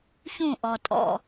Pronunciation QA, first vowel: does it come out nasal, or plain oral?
nasal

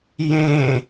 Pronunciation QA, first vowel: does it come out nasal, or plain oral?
nasal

